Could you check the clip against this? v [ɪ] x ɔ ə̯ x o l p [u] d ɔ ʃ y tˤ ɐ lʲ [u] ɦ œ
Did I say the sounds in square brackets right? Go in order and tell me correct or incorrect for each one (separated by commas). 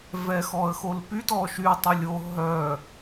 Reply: incorrect, incorrect, incorrect